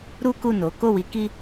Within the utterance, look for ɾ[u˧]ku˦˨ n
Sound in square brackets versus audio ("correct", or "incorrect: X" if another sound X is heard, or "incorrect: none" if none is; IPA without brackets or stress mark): incorrect: u˦